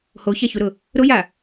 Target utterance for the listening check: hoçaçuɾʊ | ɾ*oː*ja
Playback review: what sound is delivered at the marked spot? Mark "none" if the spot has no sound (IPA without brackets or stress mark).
o